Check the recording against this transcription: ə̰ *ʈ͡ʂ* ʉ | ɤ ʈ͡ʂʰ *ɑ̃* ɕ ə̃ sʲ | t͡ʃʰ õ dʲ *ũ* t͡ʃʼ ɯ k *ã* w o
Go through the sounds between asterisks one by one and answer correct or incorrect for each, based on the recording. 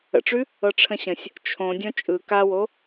correct, incorrect, incorrect, incorrect

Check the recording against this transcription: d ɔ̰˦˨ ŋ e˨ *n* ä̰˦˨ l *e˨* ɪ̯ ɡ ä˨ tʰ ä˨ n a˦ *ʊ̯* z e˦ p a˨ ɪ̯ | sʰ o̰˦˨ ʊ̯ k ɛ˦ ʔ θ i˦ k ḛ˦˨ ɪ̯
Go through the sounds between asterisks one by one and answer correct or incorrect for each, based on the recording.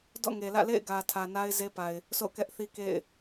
incorrect, incorrect, incorrect

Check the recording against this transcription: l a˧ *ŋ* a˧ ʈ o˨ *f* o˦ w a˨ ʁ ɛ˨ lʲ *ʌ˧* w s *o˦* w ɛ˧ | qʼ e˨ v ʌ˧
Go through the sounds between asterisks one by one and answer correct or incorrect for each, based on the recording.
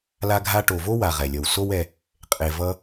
incorrect, incorrect, incorrect, correct

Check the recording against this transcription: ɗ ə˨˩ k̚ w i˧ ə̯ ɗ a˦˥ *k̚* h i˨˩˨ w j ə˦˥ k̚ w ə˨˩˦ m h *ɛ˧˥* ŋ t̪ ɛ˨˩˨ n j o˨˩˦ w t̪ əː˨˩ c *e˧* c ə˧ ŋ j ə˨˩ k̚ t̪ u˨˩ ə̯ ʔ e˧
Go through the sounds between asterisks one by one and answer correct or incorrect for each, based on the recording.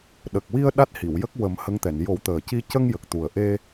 incorrect, incorrect, incorrect

